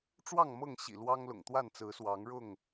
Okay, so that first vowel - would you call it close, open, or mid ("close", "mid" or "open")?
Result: open